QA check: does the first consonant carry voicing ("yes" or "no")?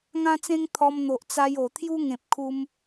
yes